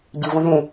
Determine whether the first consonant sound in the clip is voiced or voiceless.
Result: voiced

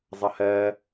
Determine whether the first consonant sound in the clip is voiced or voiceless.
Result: voiced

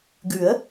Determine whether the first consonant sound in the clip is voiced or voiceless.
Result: voiced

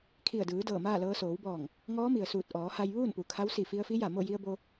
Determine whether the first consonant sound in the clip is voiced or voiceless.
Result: voiceless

